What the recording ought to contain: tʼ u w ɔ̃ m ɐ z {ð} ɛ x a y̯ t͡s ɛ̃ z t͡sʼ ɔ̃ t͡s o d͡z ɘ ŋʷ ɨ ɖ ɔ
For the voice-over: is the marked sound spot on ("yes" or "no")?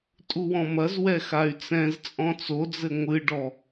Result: no